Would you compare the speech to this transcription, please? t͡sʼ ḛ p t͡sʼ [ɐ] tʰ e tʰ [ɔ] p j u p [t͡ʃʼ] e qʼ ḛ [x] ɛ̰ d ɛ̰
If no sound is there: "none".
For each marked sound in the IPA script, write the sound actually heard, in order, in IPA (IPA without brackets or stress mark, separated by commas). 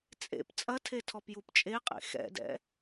ɐ, ɔ, t͡ʃʼ, x